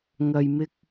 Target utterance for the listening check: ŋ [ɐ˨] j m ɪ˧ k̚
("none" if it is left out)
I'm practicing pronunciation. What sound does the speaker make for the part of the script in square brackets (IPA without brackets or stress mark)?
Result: ɐ˨